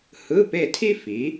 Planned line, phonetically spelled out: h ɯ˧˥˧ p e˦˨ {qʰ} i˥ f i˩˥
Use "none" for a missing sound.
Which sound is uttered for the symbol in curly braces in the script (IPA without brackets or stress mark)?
tʰ